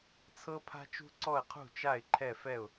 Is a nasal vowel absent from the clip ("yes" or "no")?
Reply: yes